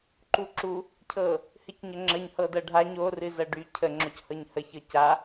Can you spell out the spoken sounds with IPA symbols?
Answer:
ǃuǁu | cʰɤ | hɨcɲəŋ͡ǁəɲ hɤdɤɖʱa ɲo rɨzɤɖy cʰə ŋ͡ǁochɤɲhə çɤca

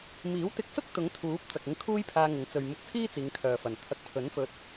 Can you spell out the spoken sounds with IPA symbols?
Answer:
miː˨˥wt̪ɪ˧k̚sʊ˥k̚ t̪ʊ˨˥ŋ t̪ʰuː˨˥p̚ t͡sɐ˨k̚ɪ˧ŋ kʰuː˥jpʰaː˧ŋɪ˨˧ŋ t͡sɵ˨ɥ mʊ˧k̚t͡sʰiː˥ t͡siː˨˧ŋkʰœː˨ fɐ˨˩nt̪ʰɐ˧k̚ pʰɵ˨˥nfɵ˧t̚

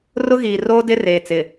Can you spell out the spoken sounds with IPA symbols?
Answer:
rʊ˦ɣiː˨roː˦ dɪ˦reː˨ t͡sɪ˨

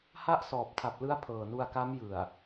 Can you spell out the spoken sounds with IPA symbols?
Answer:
ha˦˥ʔ sɔː˨˩p̚tʰa˨˩p̚lɯ˦˥a̯ pʰɤː˨˩nu˧a̯ka˦˥m jɯ˨˩a̯

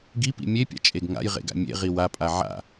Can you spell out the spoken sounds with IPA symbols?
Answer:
ɡipḭ mʲepʲa̰t͡ʃʼeɡ ŋa̰jʁḛɡa̰ mʲḛʁi wapʼa ʕa̰

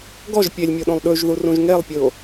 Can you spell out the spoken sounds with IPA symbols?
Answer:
ɡɔʒ pʲelʲmʲoɗõlˠ ɗʉʒðurũʒ ŋelˠpʲɯo̯

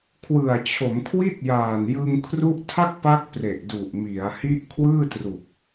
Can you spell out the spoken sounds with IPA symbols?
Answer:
kʰwɯ˨˩a̯t͡ɕʰo˩˦mkʰwi˥˩t̚jaː˨˩n jɯ˧ŋkʰru˦˥ʔ tʰa˥˩k̚pa˦˥k̚ pre˨˩ʔdu˨˩ʔ mi˩˦a̯ hi˦˥ʔkʰwɯː˥˩tru˨˩k̚

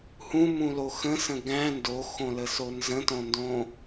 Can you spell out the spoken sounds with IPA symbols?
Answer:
hũmũlo xə̃sə̃ ɡæ̃ ndoxõləso nzə̃tõndõ

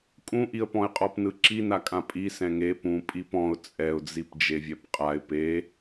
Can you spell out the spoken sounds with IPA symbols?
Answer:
kʼũʔiə̯pɔ̃ɪ̯qʼɔp nɯǁinakʼã pʼi sɛ̃ŋe pũ pʼipɔ̃ʊ̯ t͡sʼɛʊ̯d͡zip d͡ʒevʲɛpqʼaɪ̯ pe

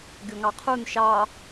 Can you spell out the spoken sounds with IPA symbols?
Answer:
ɡʲoŋɑqʰun ʃɑ

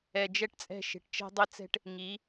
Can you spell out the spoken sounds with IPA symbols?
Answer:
ɛ˨d͡ʒɛ˦ʈt͡sʼɛ̤˦˨ ʃe̤˨ʈt͡ʃɛ̤˦dˤɪ˦t͡sɛ̤˦ʈ | ŋi˨˦

